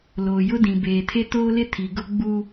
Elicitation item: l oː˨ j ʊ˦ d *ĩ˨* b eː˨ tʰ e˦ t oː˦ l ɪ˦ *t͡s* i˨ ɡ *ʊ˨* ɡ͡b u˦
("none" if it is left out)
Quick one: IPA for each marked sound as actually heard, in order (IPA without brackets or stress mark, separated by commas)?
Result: ĩ˨, tʰ, ʊ˦